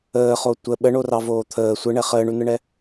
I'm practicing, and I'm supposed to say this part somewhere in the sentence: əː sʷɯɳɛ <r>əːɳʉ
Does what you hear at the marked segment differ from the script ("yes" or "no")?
yes